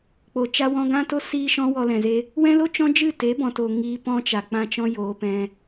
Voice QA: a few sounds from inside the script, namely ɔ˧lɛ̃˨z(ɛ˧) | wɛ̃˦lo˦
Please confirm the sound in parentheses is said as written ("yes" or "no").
no